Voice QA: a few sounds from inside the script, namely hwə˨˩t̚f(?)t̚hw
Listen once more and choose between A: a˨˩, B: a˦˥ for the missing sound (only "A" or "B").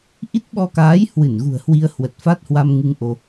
B